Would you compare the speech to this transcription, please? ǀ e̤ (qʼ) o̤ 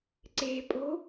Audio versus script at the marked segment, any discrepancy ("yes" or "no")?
yes